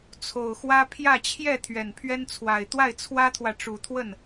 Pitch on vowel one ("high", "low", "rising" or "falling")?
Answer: low